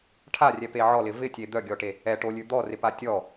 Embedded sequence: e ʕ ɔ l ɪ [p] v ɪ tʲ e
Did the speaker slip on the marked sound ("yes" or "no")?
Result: yes